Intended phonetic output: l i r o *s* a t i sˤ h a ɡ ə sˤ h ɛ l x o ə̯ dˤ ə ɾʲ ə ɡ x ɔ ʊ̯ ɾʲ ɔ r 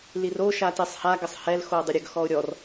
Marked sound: incorrect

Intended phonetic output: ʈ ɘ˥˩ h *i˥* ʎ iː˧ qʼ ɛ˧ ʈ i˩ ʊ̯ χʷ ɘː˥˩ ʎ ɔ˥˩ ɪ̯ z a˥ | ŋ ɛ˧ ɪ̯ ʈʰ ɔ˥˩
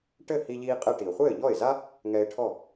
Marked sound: incorrect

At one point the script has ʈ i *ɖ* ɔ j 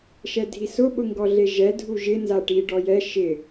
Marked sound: correct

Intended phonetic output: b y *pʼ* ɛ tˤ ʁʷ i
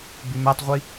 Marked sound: incorrect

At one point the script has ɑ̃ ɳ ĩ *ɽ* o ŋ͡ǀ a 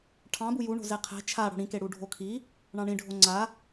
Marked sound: incorrect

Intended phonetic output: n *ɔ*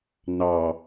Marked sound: incorrect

